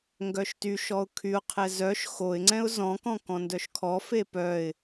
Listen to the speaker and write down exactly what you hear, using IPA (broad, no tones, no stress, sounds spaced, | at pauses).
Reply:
ŋ ɡ œ ʃ t y ʃ ɔ ʊ̯ kʰ y ʊ̯ qʰ ɛ z œ ʃ x o ɪ̯ ŋ͡ǀ ɛ̃ ʊ̯ z ɔ̃ k ɔ̃ k ɔ̃ n d œ ʃ kʰ ɔ f e p œ ɪ̯